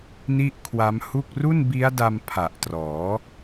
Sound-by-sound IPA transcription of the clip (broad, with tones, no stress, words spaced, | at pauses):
ni˥˩ʔkʰwa˦˥mhu˥˩k̚ ru˥˩nbi˦˥a̯da˧m pʰa˨˩ʔtrɔː˩˦